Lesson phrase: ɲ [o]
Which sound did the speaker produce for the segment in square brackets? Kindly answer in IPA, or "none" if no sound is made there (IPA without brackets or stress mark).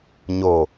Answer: o